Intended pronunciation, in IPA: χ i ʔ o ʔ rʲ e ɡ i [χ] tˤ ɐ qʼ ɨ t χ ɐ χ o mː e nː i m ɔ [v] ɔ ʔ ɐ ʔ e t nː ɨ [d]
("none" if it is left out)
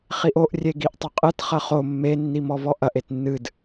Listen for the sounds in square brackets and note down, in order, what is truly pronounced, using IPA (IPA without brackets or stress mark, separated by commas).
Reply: ʔ, v, d